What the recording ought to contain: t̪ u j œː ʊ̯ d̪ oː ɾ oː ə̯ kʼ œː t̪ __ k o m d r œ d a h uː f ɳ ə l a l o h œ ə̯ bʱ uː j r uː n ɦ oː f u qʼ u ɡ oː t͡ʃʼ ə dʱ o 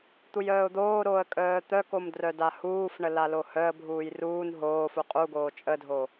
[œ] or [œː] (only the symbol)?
œ